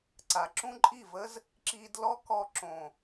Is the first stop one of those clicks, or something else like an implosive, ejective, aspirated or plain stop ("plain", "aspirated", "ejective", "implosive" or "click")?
click